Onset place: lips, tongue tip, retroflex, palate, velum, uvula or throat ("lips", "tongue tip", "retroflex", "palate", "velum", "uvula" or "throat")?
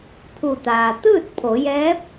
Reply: lips